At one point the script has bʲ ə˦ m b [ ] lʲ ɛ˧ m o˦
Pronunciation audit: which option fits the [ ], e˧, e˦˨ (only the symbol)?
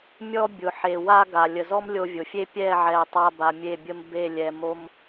e˦˨